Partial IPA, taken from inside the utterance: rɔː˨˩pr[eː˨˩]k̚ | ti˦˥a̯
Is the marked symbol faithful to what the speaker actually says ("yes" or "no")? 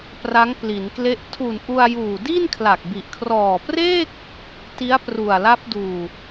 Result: no